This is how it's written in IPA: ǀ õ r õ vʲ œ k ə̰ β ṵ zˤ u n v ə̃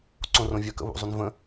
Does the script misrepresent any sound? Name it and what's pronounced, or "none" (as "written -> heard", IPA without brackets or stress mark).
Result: none